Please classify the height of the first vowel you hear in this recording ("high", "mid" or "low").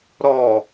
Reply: mid